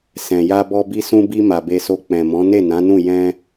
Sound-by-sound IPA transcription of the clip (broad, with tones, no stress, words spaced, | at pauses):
sɛ̃˨ ja˧bɔ˧bi˧ sũ˧bi˧ ma˨be˧so˧ k͡pɛ̃˨mɔ̃˨˦ ne˦˨nã˨˦nũ˦˨ jɛ̃˧